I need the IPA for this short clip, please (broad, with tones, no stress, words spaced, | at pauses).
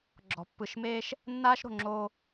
ɡ͡ǁɔ̤˨pːɯ˨ʃmeː˦ʃ | nːaː˦ʃɾo̤˨ŋ͡ǁoː˦